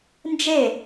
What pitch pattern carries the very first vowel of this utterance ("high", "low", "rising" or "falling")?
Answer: falling